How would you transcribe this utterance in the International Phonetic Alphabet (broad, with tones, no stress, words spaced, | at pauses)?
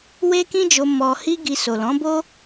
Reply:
we˦kĩ˦d͡ʒo˧ mɔ˧ hi˦ɡi˧so˨ lɔ̃˨˦bo˦